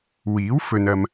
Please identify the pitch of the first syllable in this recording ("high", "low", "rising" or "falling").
rising